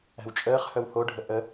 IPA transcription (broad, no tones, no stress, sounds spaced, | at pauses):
æ̤ w t͡ʃʼ əː χ h œ w h o ɖʱ ə ʔ ə